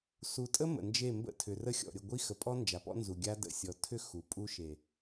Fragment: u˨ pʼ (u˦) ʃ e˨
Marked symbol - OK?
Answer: yes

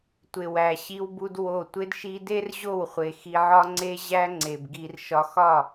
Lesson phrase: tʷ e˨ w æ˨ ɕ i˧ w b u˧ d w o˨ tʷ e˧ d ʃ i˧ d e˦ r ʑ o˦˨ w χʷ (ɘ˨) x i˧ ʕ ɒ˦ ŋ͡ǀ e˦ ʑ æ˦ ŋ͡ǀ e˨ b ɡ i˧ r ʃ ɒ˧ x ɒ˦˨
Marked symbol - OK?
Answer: no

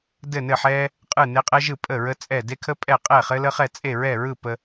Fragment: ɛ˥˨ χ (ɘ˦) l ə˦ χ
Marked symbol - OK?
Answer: yes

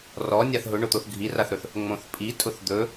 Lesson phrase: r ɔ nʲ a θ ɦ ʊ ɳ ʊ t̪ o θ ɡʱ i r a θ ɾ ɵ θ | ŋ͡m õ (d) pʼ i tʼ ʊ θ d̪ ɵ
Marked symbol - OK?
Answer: no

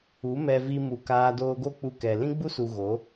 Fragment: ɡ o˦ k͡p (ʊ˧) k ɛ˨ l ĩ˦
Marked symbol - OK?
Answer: no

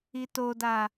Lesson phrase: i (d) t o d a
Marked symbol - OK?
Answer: no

